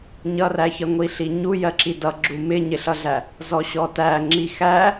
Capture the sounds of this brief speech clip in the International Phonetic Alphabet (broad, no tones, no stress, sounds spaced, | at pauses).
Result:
ɲ ʌ r æ ç ʌ ŋʷ i ɬ i ɲ u j ɜ ǁ i d ʌ ɡ͡ǁ u m ɪ ɲ ɪ ɬ ʌ ɮ æ | z ɔ ɕ ɔ t æ ŋ͡ǁ i x æ